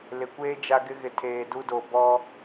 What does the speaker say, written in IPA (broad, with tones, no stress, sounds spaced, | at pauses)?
l ɪ˨ kʷ eː˦ d͡ʒ a˦ ɡ ɪ˦ ɣ ɪ˨ tʰ eː˨ d u˦ d o˨ b ɔ˦